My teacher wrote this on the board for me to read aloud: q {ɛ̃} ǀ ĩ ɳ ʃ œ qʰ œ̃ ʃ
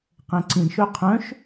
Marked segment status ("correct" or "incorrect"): correct